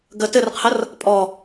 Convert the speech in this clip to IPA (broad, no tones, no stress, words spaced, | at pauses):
ɡə tɘrqʰər | pʼɔ